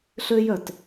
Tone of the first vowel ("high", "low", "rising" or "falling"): high